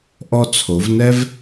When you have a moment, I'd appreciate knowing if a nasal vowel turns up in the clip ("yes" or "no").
no